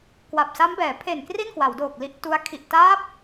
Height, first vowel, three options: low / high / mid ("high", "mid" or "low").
low